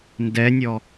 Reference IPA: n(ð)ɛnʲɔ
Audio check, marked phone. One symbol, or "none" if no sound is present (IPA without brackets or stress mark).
d